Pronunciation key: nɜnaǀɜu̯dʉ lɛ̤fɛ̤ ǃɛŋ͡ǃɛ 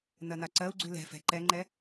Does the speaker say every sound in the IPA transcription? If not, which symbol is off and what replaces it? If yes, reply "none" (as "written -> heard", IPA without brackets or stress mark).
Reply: d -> ɡ͡ǀ